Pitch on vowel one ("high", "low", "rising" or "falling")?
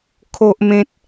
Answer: high